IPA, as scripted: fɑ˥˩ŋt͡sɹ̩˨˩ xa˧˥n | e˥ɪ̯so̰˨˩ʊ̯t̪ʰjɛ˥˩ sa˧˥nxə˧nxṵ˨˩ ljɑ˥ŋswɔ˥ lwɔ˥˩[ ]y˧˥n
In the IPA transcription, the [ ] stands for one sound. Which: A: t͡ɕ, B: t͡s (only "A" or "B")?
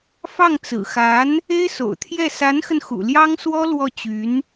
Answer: A